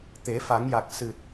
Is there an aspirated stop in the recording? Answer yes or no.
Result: no